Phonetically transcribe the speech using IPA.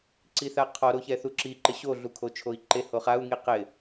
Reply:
ǀ i θ a qʰ ɔ ɾ o ç ɛ θ u ǁ i ǃ ɪ ɕ o ɮ u kʰ o t͡ʃʰ o i̯ ǃ e h o χ a u̯ ŋ i q ɪ

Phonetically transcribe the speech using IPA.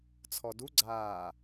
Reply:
t͡sʰ ɔ d u ɡ͡ǀ aː

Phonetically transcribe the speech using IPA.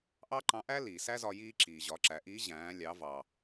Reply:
ʔ ɑ˥ ǃ ɑ̃˧˥ ʔ æ˥ l iː˩ s æ˥ z ɒ˧ j iː˧ ǁ iː˩ ʑ ɒ˩˧ ǁ æ˩˧ ʔ iː˧˥ ʑ æ̃ː˩˧ lʲ ɑ˩˧ v ɑ˩

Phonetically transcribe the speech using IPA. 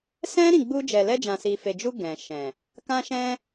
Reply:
s ɛ̃˦ ɾ ĩ˦˨ ɡ͡b u˧ d͡ʒ ɛ˨ l ɛ˧ d͡ʒ ã˨ s i˨ f e˨ d͡ʒ u˧ ɡ ɛ̃˨ ʃ ɛ̃˨ | k ã˧ ʃ ɛ̃˧

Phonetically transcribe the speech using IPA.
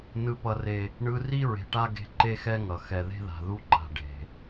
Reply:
n ɯ˨ p ʌ˨ r e˨ | ɳ ɯ˦ r i˥ ɹ e̤˨ ʈ a˥ ɡ e̤˦ ǃ e˦ x ɛ˦ ŋ ʌ˩ x ɛ˨ ð e̤˥ ð a̤˨ ð u˥ ǃ a̤˨ ɖ e̤˩

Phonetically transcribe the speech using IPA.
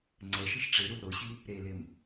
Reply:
ŋ͡ǀ ɛ ʃ i ʃ ʈ͡ʂ e ɾ u l ɾ o ɕ i | ɾ e l e m

